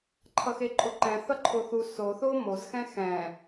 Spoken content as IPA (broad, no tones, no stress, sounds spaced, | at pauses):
ǃʰ ʌ x e ǃʼ o ǃ ɛ̃ θ ʌ ǃʰ o θ u s o θ o m o z x ɛ̃ x ɛ̃